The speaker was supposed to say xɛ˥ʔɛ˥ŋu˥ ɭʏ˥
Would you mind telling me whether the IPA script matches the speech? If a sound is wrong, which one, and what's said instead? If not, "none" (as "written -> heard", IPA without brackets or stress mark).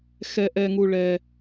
ʏ˥ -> ɛ˥